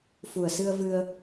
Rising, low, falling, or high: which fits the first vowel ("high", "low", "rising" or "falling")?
low